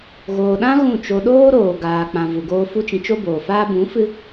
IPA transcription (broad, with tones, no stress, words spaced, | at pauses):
ɣoː˨ɗã˦ ɣũ˦˨t͡ʃo˧ ɗoː˦ɾoː˨ ɡaː˨k͡pã˨ vu˨ɡoː˧ fu˦t͡ʃĩ˧ t͡ʃo˦boː˨faː˦ bũ˨˦ fɨ˦